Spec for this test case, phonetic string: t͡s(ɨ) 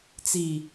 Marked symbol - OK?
no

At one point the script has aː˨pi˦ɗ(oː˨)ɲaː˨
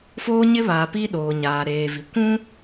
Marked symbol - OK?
yes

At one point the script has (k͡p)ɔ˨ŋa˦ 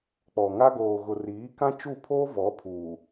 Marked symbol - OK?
yes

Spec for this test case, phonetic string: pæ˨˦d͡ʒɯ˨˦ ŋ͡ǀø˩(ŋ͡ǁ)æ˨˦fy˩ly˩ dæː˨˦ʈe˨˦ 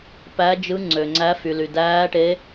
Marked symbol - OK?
no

